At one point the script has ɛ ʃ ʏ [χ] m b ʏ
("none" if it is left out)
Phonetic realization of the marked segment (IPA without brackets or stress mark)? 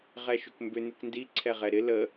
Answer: k